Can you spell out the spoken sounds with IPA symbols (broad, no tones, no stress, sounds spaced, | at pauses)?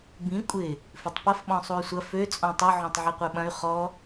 b ĩ kʷʼ ɪ | f ʏ tˤ p ɐ f ɓ ɔ̃ sˤ u y̯ sʷ ɐ f ø t͡sʼ ɔ̃ tˤ œ ʕ ɔ̃ tˤ ʕ i qʷ œ ɓ ɐ̃ y̯ χ ɔ